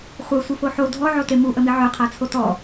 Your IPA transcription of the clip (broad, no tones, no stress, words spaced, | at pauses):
χʷœsʷifo ħo dʱɔʕote muʔəmi ʕœqʰat͡sʰo tɔ